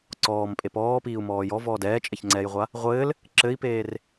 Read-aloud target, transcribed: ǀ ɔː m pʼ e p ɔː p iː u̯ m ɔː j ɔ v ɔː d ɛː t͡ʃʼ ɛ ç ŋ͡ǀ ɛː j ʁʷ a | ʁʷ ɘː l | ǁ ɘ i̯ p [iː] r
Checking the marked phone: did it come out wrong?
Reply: yes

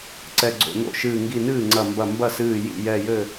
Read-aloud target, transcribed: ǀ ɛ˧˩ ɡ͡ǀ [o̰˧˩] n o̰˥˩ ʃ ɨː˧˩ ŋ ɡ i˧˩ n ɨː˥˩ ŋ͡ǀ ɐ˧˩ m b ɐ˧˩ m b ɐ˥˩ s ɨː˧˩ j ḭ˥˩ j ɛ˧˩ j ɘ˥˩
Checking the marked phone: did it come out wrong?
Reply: no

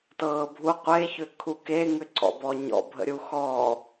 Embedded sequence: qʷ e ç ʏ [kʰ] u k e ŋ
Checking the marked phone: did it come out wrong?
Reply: no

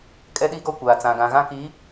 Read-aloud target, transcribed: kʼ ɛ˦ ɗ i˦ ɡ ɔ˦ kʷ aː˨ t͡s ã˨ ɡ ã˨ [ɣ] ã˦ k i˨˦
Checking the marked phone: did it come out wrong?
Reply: no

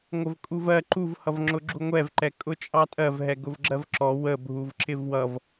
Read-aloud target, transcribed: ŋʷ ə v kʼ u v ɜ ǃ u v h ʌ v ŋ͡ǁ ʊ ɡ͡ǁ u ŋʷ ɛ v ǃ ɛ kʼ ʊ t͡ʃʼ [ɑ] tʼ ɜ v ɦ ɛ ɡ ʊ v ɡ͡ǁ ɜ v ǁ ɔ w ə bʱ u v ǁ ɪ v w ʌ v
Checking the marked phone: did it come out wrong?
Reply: no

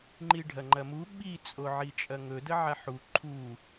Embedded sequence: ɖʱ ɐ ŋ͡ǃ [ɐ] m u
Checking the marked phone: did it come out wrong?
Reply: no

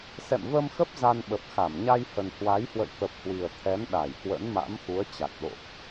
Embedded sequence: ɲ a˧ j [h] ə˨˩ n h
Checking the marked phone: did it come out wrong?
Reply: no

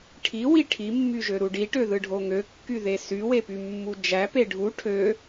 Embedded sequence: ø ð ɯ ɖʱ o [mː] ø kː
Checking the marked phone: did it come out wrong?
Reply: yes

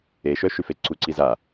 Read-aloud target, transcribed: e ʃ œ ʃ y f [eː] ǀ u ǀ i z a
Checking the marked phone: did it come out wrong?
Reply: yes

